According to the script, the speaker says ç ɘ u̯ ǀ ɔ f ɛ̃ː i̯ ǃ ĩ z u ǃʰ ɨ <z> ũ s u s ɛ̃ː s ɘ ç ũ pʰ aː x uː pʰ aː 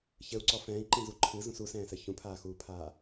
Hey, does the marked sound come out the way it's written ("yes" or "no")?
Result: yes